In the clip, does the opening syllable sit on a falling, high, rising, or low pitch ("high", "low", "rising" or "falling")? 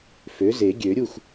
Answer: rising